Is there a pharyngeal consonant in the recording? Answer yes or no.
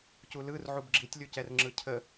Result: yes